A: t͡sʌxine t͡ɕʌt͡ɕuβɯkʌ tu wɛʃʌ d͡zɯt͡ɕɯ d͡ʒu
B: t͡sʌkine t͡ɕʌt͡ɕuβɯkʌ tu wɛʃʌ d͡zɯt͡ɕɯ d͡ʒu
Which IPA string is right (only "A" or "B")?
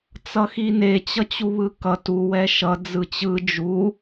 A